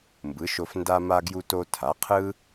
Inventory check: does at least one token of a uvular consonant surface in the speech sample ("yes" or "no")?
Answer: yes